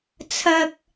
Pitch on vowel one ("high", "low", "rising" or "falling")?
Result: high